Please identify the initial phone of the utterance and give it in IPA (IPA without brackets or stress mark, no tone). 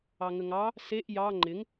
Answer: ɑ